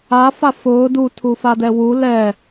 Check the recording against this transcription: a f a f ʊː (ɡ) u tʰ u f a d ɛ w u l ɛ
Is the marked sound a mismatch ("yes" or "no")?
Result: yes